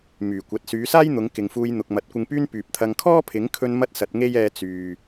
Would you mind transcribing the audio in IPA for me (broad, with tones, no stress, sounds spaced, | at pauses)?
m yː˨˩ kʷ ɐ˨ t̚ s yː˨˧ s aː˥ j n̪ ʊ˨˧ ŋ k ɪ˨ ŋ f uː˧ j n̪ ʊ˨ k̚ m ɐ˨˥ t̚ kʷ ɪ˧ ŋ p yː˥ n p yː˨ p̚ t̪ʰ ɐ˧ ŋ kʰ ɔː˥ pʰ ɪ˨˥ ŋ kʰ ɵ˧ n m ɐ˥ t̚ s ɐ˨˥ t̚ ŋ e˥ j ɛː˧ t͡s yː˨